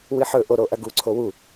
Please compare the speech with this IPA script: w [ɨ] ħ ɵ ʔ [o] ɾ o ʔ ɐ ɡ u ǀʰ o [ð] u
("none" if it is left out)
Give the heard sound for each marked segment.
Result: ɨ, o, w

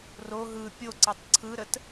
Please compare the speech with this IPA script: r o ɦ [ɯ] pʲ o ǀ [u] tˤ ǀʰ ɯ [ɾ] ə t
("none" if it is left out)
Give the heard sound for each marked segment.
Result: ɯ, ɯ, ɾ

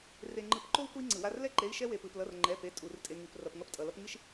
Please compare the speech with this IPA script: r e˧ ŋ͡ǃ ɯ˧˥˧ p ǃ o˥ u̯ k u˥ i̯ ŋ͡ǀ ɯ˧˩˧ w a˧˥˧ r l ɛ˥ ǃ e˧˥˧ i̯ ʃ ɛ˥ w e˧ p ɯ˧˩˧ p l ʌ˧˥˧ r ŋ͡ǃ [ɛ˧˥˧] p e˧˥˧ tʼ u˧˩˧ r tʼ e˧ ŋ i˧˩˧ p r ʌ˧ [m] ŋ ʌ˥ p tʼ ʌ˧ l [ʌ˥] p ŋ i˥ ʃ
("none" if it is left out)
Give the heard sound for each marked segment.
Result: ɛ˧˥˧, p, ʌ˥

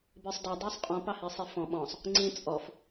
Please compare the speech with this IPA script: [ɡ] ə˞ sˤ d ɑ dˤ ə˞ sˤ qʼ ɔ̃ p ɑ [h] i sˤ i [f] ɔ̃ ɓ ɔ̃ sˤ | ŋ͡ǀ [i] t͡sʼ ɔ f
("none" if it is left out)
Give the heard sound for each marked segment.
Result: b, h, f, ĩ

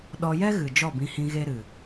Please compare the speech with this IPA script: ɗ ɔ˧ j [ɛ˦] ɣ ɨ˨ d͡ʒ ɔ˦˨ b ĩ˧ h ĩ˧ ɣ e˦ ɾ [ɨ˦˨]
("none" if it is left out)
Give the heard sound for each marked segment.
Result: ɛ˦, ɨ˨

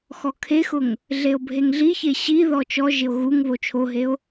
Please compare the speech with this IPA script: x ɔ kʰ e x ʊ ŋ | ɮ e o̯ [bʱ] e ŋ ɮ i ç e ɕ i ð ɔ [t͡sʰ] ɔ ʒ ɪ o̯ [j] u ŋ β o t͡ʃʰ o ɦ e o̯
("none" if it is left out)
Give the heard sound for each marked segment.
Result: bʱ, t͡ʃ, ɣ

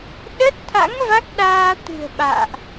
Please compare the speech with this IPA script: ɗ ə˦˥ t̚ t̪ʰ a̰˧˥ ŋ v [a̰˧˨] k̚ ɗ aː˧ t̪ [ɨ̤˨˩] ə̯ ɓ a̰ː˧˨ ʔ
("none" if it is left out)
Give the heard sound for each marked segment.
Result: a˦˥, ɨ̤˨˩

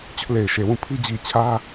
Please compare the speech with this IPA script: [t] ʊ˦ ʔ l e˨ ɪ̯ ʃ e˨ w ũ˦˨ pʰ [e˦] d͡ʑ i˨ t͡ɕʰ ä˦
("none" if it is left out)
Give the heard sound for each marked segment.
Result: t͡ɕ, i˦

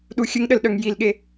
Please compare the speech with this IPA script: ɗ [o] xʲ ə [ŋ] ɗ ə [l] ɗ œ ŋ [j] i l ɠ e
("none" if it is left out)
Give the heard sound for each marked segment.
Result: u, ŋ, l, j

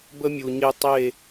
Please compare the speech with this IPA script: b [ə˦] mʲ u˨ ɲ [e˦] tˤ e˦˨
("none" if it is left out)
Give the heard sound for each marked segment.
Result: ə˦, e˦

